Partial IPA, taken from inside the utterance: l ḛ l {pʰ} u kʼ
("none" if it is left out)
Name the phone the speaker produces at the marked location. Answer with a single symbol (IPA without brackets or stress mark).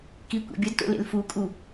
f